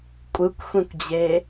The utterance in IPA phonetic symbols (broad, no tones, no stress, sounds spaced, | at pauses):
kʷʼ ɯ kʷ xʷ ĩ kʷ d͡ʑ e